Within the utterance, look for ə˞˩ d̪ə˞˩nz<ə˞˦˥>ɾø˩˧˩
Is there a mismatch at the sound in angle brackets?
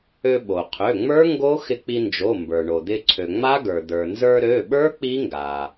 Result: yes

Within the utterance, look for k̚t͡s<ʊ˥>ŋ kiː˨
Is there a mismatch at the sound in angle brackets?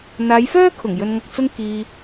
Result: yes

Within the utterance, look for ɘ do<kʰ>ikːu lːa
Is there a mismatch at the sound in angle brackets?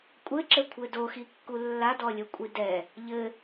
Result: yes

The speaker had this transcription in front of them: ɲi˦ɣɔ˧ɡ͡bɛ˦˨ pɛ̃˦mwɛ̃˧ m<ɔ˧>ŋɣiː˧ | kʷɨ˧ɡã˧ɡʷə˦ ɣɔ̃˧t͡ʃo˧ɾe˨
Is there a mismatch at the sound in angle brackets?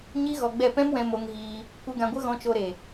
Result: yes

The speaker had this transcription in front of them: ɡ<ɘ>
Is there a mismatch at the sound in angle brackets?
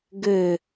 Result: no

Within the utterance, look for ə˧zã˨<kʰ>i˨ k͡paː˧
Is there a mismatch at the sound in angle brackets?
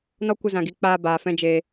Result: yes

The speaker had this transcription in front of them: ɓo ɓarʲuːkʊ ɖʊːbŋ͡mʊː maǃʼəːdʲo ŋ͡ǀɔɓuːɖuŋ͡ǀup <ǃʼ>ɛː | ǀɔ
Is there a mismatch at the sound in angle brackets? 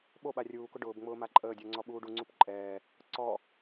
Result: no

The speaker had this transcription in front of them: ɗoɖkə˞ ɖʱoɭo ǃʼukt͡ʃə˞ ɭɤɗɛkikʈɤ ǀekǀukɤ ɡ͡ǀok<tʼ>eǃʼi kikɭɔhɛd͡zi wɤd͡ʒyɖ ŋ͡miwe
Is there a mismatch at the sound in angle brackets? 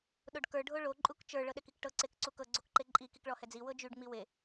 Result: yes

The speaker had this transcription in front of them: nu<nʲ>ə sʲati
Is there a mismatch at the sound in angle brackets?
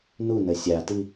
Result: yes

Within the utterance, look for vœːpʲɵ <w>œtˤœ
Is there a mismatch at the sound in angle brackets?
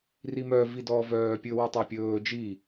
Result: no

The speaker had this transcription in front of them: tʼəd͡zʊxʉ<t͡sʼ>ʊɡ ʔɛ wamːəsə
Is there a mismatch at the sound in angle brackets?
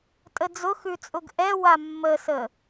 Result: no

